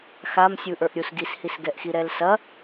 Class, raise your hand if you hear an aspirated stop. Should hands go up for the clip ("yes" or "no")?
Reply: no